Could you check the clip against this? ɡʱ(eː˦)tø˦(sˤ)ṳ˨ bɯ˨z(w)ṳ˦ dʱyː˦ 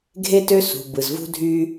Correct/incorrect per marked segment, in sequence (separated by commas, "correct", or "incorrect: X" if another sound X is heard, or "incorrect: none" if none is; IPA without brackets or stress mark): incorrect: e˦, incorrect: s, incorrect: v